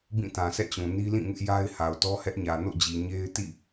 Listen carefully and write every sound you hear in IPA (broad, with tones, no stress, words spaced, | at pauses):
bĩ˦˨tã˨sʰɛ̰˦˨t͡ɕũ˨ ni˦lĩ˦˨ŋɪ˦ʔja˦ɪ̯ ha˨ʊ̯tɔ˦hɛ˦ʔɲä˨ no̰˦˨d͡ʑi˨ ɲe˦ɪ̯ tḭ˦˨